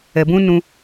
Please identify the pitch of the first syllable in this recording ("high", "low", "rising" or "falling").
low